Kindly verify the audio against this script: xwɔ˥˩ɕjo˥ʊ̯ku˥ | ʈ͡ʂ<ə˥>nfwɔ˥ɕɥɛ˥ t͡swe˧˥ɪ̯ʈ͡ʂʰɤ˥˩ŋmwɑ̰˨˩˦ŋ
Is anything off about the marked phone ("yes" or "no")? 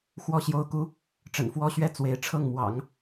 yes